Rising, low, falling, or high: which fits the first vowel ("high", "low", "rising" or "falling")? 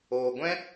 low